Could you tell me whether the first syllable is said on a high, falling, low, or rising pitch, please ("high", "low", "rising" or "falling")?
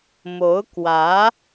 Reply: rising